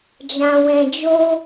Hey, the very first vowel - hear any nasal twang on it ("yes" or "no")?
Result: yes